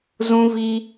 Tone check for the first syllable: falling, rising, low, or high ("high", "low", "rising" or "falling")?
high